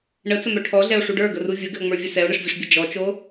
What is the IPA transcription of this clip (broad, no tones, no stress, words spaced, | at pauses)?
ɳət͡səmœ ʈʰɔɮɛo̯ʂu ɖə˞ɡəru vʲəɡɘo̯ŋ͡mə˞vʲɘ sɛo̯ɳɘʂvʲəʂbʲɘ d͡ʒɔt͡ʃo